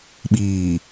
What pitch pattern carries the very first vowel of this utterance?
low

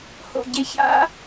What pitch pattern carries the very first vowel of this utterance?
falling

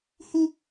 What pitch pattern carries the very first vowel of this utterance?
high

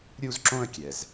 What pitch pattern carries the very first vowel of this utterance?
high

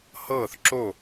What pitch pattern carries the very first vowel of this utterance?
falling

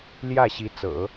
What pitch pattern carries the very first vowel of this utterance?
falling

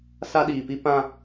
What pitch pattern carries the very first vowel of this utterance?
high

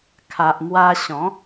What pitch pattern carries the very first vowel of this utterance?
low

